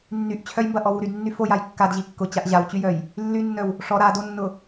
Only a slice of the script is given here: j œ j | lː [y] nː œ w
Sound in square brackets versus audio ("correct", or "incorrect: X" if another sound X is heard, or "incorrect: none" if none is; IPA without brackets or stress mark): correct